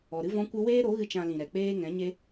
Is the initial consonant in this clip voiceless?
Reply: no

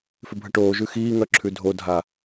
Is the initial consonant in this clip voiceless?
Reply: yes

